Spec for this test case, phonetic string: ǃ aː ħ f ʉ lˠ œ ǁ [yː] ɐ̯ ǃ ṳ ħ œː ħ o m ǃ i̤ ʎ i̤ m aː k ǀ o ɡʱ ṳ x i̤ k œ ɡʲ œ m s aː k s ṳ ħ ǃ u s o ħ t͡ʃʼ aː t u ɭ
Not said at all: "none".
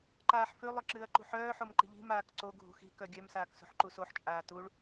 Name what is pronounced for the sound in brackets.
ɨː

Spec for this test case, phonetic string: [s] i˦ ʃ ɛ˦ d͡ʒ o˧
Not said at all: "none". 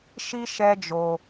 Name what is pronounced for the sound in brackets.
ʃ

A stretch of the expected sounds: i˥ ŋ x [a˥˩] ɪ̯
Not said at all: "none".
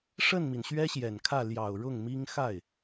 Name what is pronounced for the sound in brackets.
a˥˩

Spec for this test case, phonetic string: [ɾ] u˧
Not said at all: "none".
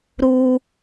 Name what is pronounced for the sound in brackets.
ɾ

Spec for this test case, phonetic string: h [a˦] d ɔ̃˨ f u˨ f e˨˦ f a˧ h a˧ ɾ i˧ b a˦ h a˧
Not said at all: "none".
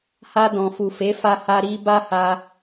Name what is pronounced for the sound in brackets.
a˧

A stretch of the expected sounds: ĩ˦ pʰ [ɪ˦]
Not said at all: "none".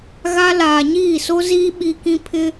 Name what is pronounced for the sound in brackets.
ɪ˦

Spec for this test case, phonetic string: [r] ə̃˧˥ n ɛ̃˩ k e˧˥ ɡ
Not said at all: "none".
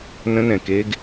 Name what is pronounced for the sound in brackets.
n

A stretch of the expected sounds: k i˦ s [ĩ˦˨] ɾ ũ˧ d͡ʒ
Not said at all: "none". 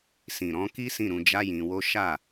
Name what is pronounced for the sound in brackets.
ĩ˦˨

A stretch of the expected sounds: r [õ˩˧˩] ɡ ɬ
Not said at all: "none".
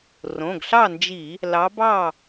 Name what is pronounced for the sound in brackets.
õ˩˧˩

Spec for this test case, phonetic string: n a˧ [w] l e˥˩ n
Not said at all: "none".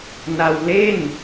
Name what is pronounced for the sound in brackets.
w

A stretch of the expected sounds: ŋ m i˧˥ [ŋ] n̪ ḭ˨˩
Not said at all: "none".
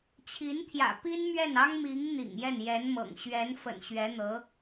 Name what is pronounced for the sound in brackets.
ŋ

